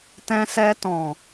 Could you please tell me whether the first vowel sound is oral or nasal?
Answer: nasal